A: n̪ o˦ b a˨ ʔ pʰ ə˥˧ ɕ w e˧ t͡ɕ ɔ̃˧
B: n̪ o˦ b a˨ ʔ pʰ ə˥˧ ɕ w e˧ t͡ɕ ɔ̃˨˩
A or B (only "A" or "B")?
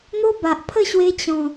B